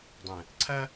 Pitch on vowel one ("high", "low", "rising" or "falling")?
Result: low